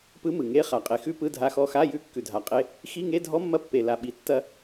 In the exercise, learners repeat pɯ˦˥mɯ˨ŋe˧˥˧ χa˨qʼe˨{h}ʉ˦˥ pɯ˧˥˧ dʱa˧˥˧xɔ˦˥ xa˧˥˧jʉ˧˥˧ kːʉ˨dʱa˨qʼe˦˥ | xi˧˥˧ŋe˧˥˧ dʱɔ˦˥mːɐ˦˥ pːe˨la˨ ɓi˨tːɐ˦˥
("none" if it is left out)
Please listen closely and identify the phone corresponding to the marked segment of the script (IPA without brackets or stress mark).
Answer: x